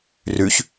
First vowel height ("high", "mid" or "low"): high